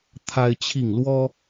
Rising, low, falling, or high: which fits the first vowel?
high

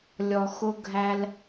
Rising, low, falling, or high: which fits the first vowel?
low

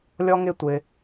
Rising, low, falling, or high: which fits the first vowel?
high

